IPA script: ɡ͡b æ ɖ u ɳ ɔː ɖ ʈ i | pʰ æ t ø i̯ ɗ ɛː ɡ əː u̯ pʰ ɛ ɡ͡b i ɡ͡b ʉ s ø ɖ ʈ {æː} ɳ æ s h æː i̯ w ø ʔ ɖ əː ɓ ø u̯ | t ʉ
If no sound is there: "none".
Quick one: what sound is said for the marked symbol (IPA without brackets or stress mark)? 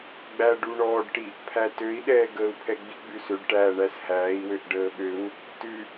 æː